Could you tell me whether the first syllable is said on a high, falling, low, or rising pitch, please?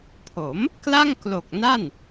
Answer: rising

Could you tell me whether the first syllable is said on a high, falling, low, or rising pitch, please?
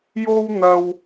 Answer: high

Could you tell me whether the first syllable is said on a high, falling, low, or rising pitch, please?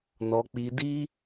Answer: low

